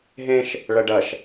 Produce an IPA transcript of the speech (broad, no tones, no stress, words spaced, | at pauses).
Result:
ɦẽʃ | ɭɐɖɐʃ